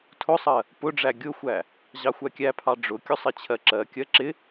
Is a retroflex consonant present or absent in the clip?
present